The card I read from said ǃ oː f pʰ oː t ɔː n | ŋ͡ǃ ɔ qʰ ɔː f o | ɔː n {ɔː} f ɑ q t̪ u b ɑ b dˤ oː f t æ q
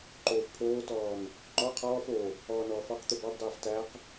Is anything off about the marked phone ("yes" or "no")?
no